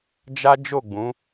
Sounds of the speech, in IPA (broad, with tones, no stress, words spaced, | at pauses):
d͡ʒa˦ d͡ʒo˦˨ ɡ͡bũ˨˦